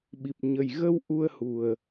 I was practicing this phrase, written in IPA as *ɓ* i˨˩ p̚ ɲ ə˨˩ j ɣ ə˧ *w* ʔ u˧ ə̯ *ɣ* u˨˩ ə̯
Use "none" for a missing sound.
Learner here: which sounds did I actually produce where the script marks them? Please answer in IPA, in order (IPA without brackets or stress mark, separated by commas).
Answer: ɓ, w, h